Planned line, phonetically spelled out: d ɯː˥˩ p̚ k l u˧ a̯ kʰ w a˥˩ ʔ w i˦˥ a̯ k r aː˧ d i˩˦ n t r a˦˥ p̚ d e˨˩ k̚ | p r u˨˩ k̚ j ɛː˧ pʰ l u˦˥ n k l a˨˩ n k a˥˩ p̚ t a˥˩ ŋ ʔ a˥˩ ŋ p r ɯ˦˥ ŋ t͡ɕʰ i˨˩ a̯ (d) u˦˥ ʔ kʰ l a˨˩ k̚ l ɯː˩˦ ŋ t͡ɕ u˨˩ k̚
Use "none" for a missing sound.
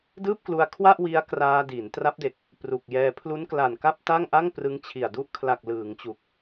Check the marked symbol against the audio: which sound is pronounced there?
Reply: d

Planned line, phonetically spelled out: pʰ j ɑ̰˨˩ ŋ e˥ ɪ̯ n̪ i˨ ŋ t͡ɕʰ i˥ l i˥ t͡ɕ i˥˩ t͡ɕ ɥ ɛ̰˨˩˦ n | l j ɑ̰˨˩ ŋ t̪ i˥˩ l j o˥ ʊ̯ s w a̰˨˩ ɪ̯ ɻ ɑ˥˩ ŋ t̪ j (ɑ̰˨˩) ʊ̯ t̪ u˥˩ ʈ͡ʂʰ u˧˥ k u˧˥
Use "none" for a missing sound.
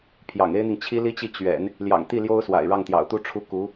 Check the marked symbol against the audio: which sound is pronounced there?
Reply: ɑ̰˨˩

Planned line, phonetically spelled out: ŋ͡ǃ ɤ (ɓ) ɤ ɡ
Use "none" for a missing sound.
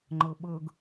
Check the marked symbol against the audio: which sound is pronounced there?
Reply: ɓ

